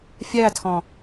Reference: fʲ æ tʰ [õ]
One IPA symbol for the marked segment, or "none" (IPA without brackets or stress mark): ɔ̃